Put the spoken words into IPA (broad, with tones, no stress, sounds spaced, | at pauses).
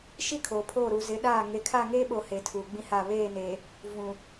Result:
ʃ i˦ kʰ o˨ pʰ oː˦˨ ɾ u˨ z ɪ˨˦ ɗ aː˦˨ ŋ e˨ kʰ a˦˨ ŋ eː˦ ɓ o˨ h e˨˦ tʰ uː˨ ɡ͡b ĩ˦ h a˦˨ β eː˦˨ n eː˨ | v ũ˨